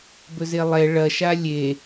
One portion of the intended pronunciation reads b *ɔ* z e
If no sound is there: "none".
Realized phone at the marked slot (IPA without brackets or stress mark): ɵ